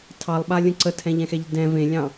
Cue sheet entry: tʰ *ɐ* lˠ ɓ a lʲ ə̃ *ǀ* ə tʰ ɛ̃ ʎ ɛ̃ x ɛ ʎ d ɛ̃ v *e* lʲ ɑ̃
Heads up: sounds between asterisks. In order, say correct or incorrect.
incorrect: ɑ, correct, incorrect: ẽ

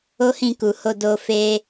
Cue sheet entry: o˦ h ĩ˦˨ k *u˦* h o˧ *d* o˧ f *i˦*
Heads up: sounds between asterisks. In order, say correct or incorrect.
incorrect: u˨, correct, incorrect: e˦

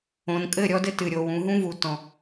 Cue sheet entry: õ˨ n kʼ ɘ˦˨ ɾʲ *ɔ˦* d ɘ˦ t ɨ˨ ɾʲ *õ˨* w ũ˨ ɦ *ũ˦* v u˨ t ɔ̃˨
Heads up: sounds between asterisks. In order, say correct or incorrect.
correct, incorrect: o˨, correct

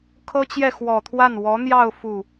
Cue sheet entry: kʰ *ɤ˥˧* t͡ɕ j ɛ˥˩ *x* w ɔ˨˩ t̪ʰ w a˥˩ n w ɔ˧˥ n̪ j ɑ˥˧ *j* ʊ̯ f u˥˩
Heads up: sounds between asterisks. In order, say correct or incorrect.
incorrect: ɤ˥, correct, incorrect: none

